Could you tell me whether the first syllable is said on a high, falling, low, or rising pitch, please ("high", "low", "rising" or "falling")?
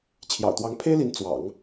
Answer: low